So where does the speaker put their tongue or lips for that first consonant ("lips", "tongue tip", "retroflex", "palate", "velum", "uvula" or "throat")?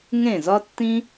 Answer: velum